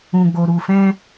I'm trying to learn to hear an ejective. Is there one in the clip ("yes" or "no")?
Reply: no